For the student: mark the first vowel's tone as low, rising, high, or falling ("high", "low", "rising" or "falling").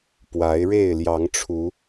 rising